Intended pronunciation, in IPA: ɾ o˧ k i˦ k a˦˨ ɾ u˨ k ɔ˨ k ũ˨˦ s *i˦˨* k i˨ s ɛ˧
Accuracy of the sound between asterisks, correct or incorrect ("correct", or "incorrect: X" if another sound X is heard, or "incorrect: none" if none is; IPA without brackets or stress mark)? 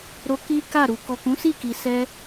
correct